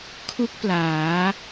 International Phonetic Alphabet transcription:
kʰ u˥˩ k̚ p l aː˩˦

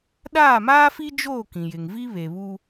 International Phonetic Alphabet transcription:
ɗ aː˦˨ m aː˦ f i˦ d͡ʒ oː˦˨ k ĩ˨ j ɪ˨ ŋ v i˦ β e˨ β u˦

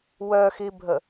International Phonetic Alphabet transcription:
w œ x i bʱ ə

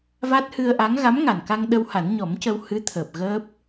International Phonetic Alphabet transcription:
v a˦˥ t̚ h ɨ˧ ə̯ ʔ a˧˥ ŋ ɣ a˧˥ m ŋ a˨˩ n k a˧ ŋ ɗ ə˧ w h a˨˩˦ n ɲ ɔ˨˩˦ m c ə˧ w h ɨ˧˥ t̪ʰ əː˨˩ p̚ ɣ əː˦˥ p̚

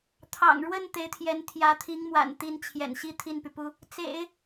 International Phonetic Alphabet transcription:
t̪ʰ ɑ̰˨˩ ŋ ɻ w ə˥˩ n t̪ e˧˥ ɪ̯ t̪ʰ j ɛ˧˥ n t̪ʰ j ä˧˥ t̪ʰ i˧˥ ŋ m w a̰˨˩ n t̪ i˧˥ n t͡ɕʰ j ɛ̰˨˩ n ɕ i˥˧ t̪ʰ i˥˩ n p y˩ p u˥ | t͡s ḛ˨˩˦ ɪ̯

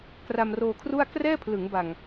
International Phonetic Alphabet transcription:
k r a˧ m r oː˧ kʰ r u˥˩ a̯ k r ɛː˥˩ pʰ l ɯ˩˦ ŋ b a˨˩ ŋ

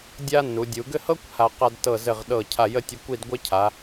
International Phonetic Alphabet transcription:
dʲ a˥ nː u˩˧ dʲ u˩˧ ɡ ɘ˥˧ h ɤ˥ kʷ h a˧ q a˧ d t ɤ˧˩ z ɘ˧˩ ʁ ɗ ɤ˧˩ cʰ a˧˩ j ə˥˧ tʲ ə˧ kʷ i˥˧ d ɡʷ ɘ˥ cʰ a˩˧

